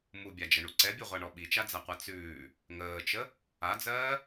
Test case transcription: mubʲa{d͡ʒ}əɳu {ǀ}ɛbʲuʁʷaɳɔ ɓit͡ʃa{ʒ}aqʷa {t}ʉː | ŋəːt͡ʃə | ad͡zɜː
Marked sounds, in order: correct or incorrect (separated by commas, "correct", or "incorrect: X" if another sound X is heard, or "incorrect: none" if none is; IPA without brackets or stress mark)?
correct, correct, incorrect: d͡z, incorrect: t͡s